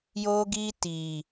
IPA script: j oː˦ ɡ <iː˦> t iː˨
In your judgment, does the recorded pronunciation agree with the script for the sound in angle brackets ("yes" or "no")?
yes